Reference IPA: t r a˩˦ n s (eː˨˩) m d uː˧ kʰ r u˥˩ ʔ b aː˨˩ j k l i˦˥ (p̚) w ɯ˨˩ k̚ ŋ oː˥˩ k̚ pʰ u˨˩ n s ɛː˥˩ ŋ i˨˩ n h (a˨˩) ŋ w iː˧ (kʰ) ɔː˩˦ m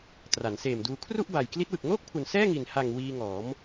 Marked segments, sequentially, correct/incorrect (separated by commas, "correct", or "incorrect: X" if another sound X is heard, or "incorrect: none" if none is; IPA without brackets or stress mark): correct, incorrect: t̚, correct, incorrect: ŋ